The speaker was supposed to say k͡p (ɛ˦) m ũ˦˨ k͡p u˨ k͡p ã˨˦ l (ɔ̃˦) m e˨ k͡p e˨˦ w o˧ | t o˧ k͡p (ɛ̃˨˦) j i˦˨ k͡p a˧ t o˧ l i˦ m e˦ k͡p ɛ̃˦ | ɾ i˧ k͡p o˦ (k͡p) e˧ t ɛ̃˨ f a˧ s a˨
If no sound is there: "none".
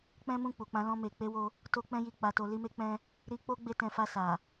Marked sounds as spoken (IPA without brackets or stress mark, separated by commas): ɛ̃˦, ɔ̃˧, ɛ̃˦, ɡ͡b